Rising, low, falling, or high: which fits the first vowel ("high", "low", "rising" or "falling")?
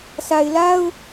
low